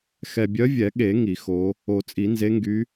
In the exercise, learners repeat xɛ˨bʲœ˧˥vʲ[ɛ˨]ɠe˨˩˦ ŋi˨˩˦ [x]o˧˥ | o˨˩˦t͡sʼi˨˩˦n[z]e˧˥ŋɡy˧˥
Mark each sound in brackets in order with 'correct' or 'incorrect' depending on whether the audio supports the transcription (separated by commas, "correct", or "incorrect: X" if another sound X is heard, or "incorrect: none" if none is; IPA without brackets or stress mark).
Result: incorrect: ɛ˨˩˦, correct, correct